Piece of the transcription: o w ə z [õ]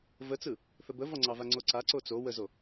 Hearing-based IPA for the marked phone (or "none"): o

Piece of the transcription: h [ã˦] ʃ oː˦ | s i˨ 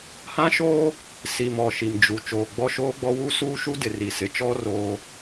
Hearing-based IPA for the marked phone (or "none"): ã˦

